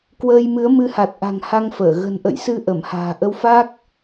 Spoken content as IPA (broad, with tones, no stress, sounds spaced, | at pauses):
k w əː˧ j m ɨ˨˦ ə̯ m ɨ˨˦ h a˨˩ t̚ ʔ a̤˨˩ ŋ h a˧ ŋ f əː˧˩ ɣ ə̤˨˩ n ʔ ə̰˧˨ j s ɨ˨˦ ʔ ə˧˩ m h a̤ː˨˩ ʔ ə˧ w f a˦˥ k̚